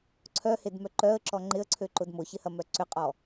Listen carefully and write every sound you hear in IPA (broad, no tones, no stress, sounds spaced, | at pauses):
ǀʰ œ h e d m œ ǃ œ ə̯ ǁ ɔ ŋ͡ǃ ɪ ə̯ ǀʰ ø ǃ ʊ d m ʊ ç ɪ h ɐ m œ ǀ ʏ qʼ ɔ